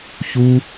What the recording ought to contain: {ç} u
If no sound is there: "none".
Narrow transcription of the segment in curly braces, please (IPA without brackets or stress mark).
ç